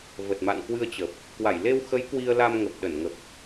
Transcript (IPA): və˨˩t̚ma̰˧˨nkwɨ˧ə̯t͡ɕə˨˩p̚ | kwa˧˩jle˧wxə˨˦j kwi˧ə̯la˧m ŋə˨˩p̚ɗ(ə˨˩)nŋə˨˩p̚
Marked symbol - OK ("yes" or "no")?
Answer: no